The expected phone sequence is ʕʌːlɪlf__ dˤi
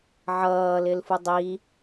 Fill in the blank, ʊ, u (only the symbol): u